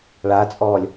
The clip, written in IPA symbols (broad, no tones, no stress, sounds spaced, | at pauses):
ɭ a t͡sʼ ɔː lʲ